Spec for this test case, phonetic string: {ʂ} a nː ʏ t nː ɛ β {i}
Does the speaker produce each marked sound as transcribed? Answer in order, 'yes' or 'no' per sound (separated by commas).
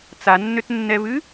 no, no